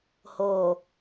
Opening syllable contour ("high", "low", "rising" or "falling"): low